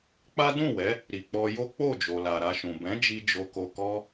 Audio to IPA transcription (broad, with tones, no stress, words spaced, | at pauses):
k͡pa˦ dũ˦˨wɛ˨˦ | ɾi˨k͡pɔ˧jo˦ k͡po˦˨d͡ʒo˨la˨ ɾa˧ʃũ˨ bɛ̃˨˦ d͡ʒi˦d͡ʒo˧ ko˨kɔ˧